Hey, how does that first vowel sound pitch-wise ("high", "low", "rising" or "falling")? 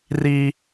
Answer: high